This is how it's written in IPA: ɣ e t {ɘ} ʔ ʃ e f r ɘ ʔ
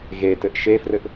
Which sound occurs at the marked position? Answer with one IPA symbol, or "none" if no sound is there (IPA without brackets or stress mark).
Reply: ɘ